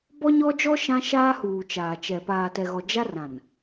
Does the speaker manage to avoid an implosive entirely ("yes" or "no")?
yes